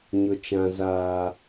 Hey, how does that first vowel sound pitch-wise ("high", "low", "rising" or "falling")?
high